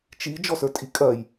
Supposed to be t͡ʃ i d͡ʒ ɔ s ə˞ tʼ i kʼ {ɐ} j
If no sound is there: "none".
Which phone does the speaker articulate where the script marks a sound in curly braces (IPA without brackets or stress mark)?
ɐ